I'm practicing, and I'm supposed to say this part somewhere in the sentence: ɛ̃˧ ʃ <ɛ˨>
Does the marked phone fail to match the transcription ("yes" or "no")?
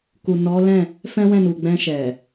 no